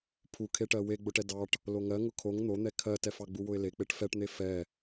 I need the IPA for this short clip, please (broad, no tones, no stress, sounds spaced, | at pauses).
pʰ u kʰ e ʈ ɜ w e ɡ͡b ʊ ʈ ɛ d ɑ ʈ | l o ŋ ɜ ŋ ʊ kʰ o ŋ n̪ o n̪ ɛ kʰ ɜ t ɛ f ɑ ɡ͡b u w ʊ ɪ̯ l e k͡p e ʈ f ɛ ʈ n̪ e f ɛ